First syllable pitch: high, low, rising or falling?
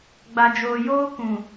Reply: low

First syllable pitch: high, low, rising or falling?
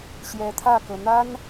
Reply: rising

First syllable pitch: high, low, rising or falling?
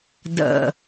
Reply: low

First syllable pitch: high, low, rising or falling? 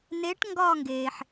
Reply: rising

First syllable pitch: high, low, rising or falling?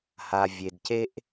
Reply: low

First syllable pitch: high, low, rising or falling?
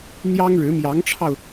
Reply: high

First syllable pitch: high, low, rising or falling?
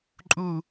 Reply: falling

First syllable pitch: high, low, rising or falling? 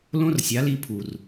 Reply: high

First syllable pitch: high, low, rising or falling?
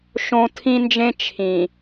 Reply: high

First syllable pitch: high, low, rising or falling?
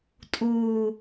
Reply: low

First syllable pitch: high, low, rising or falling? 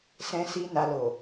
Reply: high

